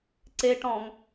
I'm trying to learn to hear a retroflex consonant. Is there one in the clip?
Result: yes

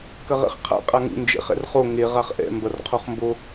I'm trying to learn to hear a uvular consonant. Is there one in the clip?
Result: yes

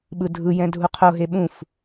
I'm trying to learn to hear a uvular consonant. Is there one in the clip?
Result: yes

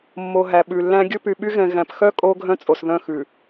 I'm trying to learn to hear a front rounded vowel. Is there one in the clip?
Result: yes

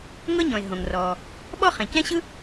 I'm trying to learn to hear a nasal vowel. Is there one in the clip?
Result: yes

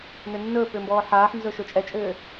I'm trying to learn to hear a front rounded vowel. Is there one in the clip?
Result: yes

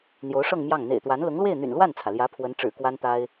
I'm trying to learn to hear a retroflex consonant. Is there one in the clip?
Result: yes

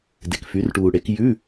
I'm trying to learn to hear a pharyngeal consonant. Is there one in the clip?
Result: no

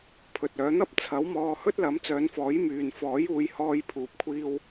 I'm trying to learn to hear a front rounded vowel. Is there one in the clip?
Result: yes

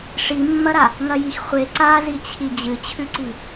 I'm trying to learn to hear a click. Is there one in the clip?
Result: yes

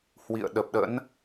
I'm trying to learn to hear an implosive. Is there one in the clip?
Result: yes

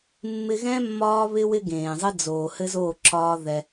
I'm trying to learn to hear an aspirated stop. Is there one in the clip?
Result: no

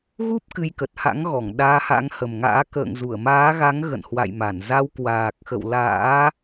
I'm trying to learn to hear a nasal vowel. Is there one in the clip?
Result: no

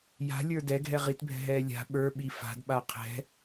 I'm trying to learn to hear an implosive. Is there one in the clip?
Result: yes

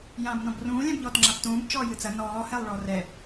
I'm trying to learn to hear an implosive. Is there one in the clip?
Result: no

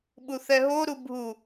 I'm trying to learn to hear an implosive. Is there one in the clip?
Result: yes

